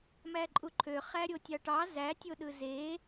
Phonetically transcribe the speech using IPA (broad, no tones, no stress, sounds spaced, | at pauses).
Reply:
m æ ǃʼ u ǃʰ ø χ æ ɾʲ o tʲ ɑ ʈ ɑ z æ tʲ o ɗ ɯ z e